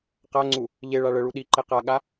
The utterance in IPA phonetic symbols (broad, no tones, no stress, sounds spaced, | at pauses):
q a ŋ͡ǀ u | ʎ e ɭ a ɭ ə ɭ u ɗ i ǃ e q a ɠ a